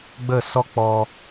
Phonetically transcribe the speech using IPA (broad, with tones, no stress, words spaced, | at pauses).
ɡ͡bə˦˨sɔ˦ k͡pɔ˧